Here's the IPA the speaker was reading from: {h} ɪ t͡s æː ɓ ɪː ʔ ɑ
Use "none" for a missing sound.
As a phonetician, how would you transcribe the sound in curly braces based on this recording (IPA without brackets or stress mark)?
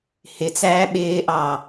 h